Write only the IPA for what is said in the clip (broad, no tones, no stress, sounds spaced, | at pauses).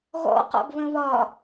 ɣ ɔ̰ q ɔ̰ ɡ β ə̃ β ɒ